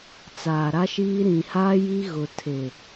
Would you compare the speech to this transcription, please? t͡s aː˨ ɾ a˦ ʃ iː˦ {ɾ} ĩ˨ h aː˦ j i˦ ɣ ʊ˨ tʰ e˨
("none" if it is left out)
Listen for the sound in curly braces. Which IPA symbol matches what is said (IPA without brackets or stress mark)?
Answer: ɾ